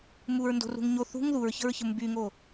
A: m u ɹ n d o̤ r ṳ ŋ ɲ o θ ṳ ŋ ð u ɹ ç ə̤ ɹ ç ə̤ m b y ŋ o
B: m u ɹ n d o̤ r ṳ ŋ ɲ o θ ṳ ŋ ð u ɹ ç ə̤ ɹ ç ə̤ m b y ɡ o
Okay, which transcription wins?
A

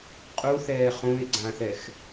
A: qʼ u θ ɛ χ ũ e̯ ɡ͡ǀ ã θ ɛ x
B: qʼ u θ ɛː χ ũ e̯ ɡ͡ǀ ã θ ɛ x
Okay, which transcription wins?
B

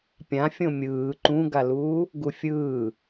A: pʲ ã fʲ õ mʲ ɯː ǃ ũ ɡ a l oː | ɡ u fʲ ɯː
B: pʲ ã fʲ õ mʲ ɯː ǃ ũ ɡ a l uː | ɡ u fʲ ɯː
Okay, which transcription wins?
B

